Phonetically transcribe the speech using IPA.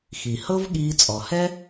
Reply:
xi˨hɤ˦vɠiː˧ t͡sʼɔ˨hɛ˦

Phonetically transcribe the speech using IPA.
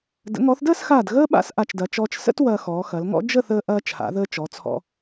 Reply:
də̰˩˧ŋɔ˩˧θdəː˥˧sxaː˧˩d ɣəː˥ ɓa̰˥˧sʔa˧˩t͡ʃdɐ˩˧ t͡ʃɔː˧t͡ʃ sə̰˥t wɐː˧xɔː˩˧xɐ˩˧lŋɔ̰˥ d͡ʒə˥˧θəː˧ ʔɐː˧t͡ʃʰa̰˩˧ðəː˧ t͡ʃɔ˩˧t͡sʰɔ̰˧

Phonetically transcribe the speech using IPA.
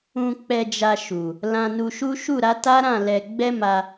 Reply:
ũ˧k͡pɛ˧ d͡ʒa˧ʃu˨ | lã˧nu˧ʃu˦ ʃu˦˨ɾa˨˦ta˦ɾã˦˨ lɛ˧ ɡ͡bɛ˦ma˧

